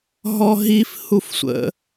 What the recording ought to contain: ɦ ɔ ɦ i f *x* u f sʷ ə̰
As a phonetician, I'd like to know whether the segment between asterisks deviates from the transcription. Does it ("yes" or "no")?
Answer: yes